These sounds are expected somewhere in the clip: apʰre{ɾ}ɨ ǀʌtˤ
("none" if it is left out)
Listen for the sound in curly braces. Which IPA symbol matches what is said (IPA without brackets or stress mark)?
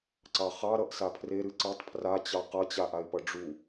ɾ